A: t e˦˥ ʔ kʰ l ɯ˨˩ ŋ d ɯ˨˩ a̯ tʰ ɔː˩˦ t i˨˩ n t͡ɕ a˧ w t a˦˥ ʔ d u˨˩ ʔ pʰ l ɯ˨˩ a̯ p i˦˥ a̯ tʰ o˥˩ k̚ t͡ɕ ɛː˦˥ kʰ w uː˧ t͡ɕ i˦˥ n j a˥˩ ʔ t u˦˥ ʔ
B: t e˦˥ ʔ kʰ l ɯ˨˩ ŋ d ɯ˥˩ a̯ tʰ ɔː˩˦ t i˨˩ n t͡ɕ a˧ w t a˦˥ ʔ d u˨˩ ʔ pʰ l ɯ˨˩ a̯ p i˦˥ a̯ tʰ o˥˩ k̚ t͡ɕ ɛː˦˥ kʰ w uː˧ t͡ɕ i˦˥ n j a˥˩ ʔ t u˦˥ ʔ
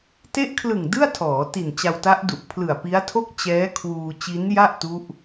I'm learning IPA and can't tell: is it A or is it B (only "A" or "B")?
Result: B